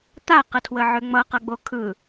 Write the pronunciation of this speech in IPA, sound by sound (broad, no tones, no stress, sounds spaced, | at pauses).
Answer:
t̪ a q ə tʰ w ə ʕ ʏ ŋ͡m ʌ q ʌ ɡ͡b o kʰ ɯ